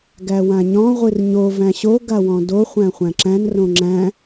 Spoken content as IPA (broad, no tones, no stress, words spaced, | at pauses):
ɡæwãɲɔ̃ ʁʷɨrɲo væ̃ɕo ɡawɔ̃do χʷæ̃χʷæ̃ǁæ̃n rõŋ͡ǁæ̃